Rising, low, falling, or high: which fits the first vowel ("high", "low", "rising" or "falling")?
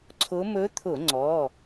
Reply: rising